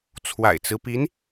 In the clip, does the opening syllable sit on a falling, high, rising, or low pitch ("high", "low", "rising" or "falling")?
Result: low